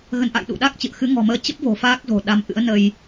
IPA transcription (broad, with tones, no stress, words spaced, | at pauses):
ɣə˨˦nʔa̰˧˨j ɗṵ˧˨ɗa˦˥k̚t͡ɕɨ̰˧˨ə̯ xɨ˨˦ŋɔ̤˨˩məː˧ t͡ɕə˦˥p̚vo̤˨˩ faː˦˥k̚zo̤˨˩ɗa˨˦m ʔɨ̰˧˥ə̯nə˧j